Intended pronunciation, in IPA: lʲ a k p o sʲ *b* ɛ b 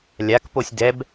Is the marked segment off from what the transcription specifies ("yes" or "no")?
yes